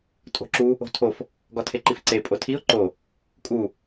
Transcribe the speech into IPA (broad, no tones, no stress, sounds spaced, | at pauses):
tʼ o̤ ǁ u | o̤ tʰ o f | ɡ ɒ tʰ e ǃ i f ǀ e pʼ o tʰ i ʊ̯ ǃ o | kʼ u